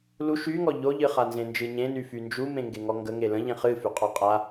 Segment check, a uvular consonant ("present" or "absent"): present